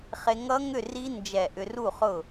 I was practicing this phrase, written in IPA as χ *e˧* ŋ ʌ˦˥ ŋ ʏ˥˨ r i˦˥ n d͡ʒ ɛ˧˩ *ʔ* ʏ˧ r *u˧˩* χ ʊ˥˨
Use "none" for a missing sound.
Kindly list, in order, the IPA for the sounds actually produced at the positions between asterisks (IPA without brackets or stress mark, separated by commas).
e˧, ʔ, u˥˨